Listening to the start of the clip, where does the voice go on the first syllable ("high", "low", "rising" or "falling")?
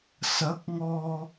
rising